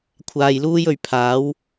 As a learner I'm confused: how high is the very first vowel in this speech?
low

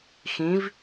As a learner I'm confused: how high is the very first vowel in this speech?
high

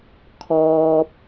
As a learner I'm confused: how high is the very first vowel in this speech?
mid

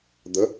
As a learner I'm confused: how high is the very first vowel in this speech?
mid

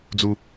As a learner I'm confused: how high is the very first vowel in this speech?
high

